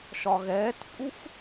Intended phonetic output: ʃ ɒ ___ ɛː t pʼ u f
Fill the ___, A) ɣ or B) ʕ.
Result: A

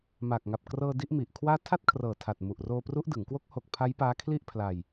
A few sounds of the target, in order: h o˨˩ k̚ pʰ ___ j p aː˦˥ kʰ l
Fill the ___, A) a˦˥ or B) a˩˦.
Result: A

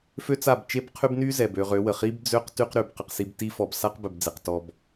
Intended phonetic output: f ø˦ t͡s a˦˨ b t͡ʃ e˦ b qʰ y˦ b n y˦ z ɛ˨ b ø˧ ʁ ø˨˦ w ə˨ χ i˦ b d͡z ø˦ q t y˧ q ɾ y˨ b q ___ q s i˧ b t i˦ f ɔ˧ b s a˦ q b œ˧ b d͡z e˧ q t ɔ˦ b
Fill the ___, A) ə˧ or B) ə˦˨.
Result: A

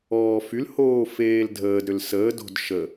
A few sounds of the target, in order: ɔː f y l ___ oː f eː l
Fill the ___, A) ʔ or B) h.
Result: B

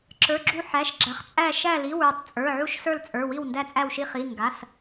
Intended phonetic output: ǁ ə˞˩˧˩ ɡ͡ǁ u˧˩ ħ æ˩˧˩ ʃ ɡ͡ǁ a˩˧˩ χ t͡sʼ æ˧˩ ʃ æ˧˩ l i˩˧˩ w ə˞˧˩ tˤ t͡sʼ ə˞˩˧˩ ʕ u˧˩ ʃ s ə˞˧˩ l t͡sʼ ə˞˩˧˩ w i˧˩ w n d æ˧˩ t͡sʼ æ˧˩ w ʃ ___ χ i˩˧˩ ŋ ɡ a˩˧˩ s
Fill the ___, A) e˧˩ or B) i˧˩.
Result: B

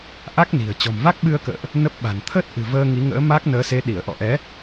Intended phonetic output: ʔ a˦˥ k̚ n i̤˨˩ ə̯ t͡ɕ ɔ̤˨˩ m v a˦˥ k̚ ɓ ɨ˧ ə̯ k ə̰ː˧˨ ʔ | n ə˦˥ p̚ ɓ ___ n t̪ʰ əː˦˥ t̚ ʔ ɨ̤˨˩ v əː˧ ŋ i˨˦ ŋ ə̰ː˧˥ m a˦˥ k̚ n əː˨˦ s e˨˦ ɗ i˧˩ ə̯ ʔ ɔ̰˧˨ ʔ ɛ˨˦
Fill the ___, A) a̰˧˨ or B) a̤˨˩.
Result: B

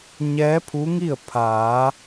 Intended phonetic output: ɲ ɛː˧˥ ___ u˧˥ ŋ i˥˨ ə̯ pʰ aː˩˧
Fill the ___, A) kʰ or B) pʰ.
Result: B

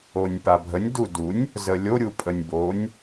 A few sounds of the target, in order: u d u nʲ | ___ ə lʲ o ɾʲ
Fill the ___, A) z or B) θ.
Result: A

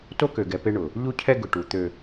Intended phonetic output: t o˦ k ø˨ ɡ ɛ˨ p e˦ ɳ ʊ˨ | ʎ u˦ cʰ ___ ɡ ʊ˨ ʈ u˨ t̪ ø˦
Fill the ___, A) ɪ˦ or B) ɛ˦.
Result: B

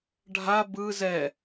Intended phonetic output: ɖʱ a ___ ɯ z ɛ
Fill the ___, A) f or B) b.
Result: B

